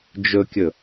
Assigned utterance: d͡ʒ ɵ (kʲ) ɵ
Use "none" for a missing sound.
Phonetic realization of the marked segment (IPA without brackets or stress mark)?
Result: kʲ